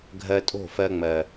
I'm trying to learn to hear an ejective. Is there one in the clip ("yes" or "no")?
yes